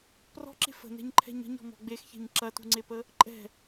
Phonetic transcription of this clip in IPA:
p r ɔ̤ ǁ e̤ f ə̤ n ɛ̤ ɲ ǃʰ ɛ̤ ɲ ə̤ ɲ ɔ̤ m ɔ̤ ɡ͡b e x ç e̤ ɲ ǁ ɐ t ṳ ŋ͡ǀ e p ə | ǃʼ ɛ̤

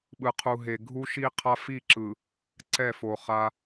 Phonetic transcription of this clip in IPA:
ɓ ɯ˨ qʰ u˨ ɦ e˨ ɡʱ u˦ ʃ i˦ qʰ a˦ f i˦˨ ǁ ɯ˨ | ǀ ɛ˦˨ f o˨ χ a˦

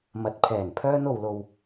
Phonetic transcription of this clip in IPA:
m ɐ˨ t̚ pʰ ɛː˨˩ n pʰ œː˧ n o˨ w l o˨ w

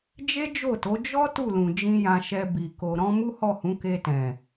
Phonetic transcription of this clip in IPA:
d͡ʒ e˦ d͡ʒ o˦˨ t o˨˦ d͡ʒ ɔ˦ t u˦˨ l ũ˨ d͡ʒ ĩ˧ j ã˧ ʃ ɛ˧ b i˨ k o˨ ɾ ɔ̃˧ m u˦ h ɔ˦˨ h ũ˨˦ k e˧ t ɛ̃˨

